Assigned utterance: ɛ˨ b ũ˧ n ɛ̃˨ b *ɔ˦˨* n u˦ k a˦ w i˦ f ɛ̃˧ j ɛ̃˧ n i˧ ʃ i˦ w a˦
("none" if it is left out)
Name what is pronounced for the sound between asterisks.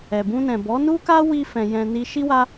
ɔ˨˦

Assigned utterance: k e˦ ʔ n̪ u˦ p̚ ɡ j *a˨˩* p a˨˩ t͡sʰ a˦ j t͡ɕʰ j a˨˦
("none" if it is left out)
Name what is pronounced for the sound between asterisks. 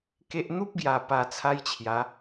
a˨˩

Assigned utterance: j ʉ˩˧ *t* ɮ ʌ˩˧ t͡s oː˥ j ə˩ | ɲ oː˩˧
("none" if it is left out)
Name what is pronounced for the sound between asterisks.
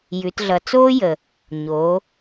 t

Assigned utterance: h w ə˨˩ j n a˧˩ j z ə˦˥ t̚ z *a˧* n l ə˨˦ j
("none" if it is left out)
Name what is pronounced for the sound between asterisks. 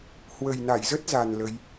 a˨˩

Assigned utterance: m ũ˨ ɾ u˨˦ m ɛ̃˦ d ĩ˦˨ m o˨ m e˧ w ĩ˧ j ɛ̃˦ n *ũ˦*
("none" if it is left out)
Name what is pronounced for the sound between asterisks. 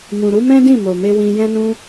ũ˦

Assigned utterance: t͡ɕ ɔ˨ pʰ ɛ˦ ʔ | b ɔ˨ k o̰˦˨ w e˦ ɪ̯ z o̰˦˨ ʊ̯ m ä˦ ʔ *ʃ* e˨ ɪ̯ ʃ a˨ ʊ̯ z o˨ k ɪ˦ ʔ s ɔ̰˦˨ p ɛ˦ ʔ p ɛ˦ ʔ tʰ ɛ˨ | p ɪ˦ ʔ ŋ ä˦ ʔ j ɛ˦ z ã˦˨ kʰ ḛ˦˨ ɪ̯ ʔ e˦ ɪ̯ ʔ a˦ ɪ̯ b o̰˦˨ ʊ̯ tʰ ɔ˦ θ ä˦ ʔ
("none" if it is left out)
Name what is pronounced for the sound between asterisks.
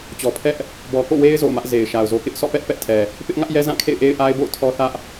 z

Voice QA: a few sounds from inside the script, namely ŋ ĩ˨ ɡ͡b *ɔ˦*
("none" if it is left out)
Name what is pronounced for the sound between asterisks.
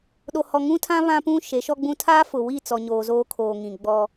ɔ˦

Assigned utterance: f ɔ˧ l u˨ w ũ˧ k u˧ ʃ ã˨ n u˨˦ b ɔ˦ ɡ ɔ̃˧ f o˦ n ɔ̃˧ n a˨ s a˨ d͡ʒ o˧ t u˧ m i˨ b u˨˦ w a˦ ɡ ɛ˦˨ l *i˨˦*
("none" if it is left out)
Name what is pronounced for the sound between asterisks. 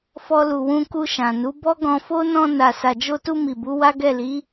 i˨˦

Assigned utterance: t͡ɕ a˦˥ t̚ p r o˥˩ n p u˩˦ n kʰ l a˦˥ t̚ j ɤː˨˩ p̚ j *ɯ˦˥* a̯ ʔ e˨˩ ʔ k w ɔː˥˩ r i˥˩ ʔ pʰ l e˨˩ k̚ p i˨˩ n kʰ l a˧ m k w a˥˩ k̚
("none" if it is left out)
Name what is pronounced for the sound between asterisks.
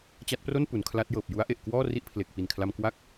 u˦˥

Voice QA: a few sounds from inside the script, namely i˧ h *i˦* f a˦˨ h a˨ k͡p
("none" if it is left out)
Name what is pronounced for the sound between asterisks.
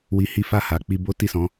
i˦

